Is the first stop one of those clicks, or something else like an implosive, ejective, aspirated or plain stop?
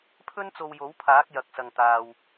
aspirated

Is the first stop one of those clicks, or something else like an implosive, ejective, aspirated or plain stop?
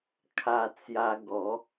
aspirated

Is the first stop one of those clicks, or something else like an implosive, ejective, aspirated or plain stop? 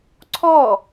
click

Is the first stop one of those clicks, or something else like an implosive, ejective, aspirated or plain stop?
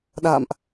implosive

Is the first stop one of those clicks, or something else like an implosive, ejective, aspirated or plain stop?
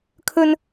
aspirated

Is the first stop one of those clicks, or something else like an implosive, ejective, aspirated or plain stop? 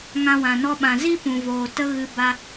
implosive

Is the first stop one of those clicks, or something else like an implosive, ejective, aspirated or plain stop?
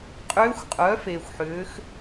ejective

